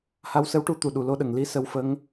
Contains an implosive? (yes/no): yes